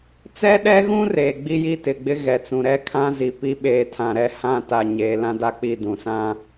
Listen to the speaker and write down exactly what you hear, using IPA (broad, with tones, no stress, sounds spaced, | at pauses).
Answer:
t͡s ɛ˦ ɗ ɛ˦ ɣ ũ˦ r eː˨ ɡ͡b i˦ j i˦ t ɪ˨ ɡ͡b ɪ˦ ɣ ɛ˨ t͡s ũ˨ ɾ ɛ˦ kʰ ã˦ z i˨ p i˦ ɓ eː˨ tʰ ã˨ ɾ ɛ˦ h ã˦˨ t a˨ ɲ eː˨ l ã˦ d a˦ k͡p i˦˨ d ũ˨ s ã˦